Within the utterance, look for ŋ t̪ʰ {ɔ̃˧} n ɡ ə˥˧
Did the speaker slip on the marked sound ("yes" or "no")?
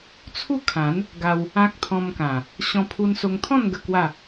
yes